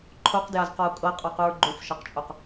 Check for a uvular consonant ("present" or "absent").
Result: present